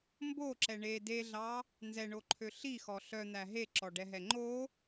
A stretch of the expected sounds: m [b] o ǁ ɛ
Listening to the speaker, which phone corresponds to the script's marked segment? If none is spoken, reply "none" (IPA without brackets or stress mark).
b